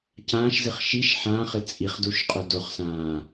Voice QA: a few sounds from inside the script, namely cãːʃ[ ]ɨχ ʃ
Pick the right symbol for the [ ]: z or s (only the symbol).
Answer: z